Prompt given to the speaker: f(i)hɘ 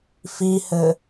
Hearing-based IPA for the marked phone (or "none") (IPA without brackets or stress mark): i